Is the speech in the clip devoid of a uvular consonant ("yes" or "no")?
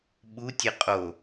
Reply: no